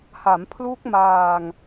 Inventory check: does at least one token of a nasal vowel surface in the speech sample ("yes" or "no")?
no